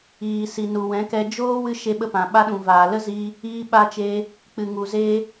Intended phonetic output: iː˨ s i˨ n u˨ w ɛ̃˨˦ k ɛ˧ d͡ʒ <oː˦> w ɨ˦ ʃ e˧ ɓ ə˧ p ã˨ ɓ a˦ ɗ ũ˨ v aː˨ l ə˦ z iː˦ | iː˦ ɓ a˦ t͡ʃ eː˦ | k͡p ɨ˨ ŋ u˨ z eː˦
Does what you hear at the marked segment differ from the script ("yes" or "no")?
no